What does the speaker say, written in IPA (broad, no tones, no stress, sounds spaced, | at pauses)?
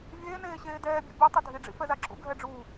vʲ eː n eː ɕ eː d ɛː bʲ ṵ bʲ u tˤ ʊ dʱ i ɖ͡ʐ ḭ f ɛ z a ǁ ṵ ɡʱ ɛ ɖ͡ʐ uː